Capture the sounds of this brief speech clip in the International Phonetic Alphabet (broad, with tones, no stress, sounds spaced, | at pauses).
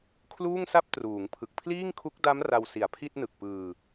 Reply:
kʰ l uː˥˩ ŋ s a˥˩ p̚ t r uː˩˦ ŋ pʰ ɯ˨˩ k̚ pʰ l iː˥˩ ŋ kʰ u˦˥ k̚ d a˦˥ m r a˧ w s i˨˩ a̯ pʰ i˥˩ t̚ n ɯ˨˩ k̚ p ɯː˧